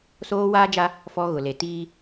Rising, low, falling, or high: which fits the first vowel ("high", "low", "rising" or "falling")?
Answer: high